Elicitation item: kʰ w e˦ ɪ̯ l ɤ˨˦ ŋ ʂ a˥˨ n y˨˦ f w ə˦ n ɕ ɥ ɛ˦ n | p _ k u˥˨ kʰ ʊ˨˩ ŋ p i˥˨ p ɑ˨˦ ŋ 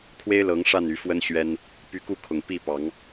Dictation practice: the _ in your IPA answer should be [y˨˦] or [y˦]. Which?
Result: y˨˦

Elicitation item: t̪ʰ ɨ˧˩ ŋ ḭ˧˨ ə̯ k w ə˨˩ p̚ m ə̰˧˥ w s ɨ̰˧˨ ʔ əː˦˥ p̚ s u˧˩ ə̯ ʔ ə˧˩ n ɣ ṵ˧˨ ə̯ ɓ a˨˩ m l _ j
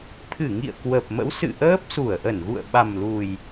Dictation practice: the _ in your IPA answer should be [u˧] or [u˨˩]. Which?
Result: u˨˩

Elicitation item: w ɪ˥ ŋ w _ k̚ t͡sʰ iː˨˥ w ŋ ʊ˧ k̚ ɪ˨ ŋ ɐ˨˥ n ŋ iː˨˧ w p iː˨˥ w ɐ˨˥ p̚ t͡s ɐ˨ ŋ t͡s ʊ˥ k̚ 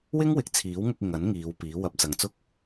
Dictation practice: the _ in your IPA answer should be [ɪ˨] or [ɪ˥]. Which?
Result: ɪ˨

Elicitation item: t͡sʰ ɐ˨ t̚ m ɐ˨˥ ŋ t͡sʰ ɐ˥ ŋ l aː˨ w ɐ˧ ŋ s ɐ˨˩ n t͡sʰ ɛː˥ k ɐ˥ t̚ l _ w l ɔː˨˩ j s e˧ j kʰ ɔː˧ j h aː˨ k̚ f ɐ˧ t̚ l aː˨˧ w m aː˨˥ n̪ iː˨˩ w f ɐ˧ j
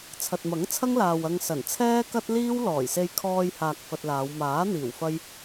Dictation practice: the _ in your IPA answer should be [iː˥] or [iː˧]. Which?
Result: iː˥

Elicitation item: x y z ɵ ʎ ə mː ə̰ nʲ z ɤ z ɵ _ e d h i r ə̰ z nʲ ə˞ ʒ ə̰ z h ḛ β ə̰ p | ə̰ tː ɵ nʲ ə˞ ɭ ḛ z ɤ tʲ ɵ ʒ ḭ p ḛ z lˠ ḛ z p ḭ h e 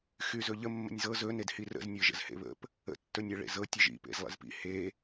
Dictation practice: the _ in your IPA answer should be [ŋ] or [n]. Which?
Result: n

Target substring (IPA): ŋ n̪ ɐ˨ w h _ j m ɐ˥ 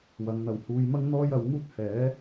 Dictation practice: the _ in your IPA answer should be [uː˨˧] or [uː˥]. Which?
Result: uː˨˧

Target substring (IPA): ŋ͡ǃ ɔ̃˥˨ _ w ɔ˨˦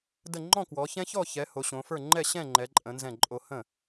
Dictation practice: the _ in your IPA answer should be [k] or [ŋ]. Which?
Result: k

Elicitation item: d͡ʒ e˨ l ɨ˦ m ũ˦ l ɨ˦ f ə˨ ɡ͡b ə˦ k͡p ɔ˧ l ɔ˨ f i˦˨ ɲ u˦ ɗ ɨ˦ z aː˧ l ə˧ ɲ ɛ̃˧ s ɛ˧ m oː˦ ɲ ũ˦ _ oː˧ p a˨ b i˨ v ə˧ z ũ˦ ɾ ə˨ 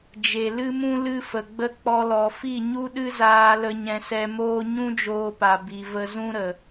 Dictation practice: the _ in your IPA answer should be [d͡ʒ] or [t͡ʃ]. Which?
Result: d͡ʒ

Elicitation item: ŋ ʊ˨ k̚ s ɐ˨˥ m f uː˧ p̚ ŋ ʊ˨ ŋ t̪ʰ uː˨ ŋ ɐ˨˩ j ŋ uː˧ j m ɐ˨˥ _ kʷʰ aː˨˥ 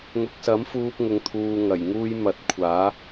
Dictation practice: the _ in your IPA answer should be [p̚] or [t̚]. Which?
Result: t̚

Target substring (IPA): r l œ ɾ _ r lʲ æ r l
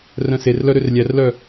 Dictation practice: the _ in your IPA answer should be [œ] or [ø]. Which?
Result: ø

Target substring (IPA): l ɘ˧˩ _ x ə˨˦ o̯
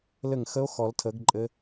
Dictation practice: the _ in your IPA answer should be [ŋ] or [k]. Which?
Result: ŋ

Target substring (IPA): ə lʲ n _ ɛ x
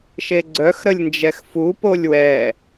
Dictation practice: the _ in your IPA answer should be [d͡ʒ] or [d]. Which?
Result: d͡ʒ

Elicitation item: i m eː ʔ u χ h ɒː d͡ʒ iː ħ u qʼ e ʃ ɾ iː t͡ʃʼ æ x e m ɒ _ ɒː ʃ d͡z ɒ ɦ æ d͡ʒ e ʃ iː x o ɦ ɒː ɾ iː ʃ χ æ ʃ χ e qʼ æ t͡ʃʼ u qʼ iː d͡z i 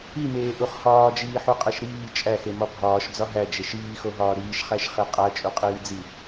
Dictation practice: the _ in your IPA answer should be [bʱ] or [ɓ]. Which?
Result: bʱ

